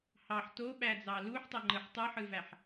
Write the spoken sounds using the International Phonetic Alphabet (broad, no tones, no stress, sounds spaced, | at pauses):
h ɑ ħ t o ɓ æ d͡z ɑ l u ħ tˤ e ŋ͡ǃ ɯ ħ tˤ ɯ ħ ɯ v æ ħ